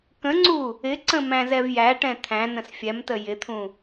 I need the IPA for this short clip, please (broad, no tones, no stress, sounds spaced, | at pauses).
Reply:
k ə̃ ŋ͡ǀ u | ɪ ǀ ə̃ m æ̃ z ɛ v j æ ʈ ɛ̃ t̪ʰ æ̃ n ə̃ s fʲ ɛ m t ə j ɪ t̪ʰ ũ